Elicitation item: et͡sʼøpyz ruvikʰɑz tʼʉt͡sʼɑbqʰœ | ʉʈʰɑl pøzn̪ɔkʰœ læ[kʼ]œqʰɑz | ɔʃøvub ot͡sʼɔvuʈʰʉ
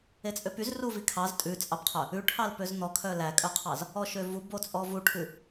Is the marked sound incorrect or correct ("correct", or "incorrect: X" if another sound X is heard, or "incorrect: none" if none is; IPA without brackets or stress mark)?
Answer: correct